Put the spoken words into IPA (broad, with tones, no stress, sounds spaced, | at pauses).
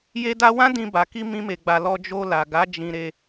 j e˧ d a˧ w ã˦ d ĩ˧ b a˨ k i˧ m ĩ˦ m e˧ ɡ͡b a˧ l ɔ˧ d͡ʒ o˧ l a˨ ɡ a˨˦ d͡ʒ ĩ˧ ɾ e˧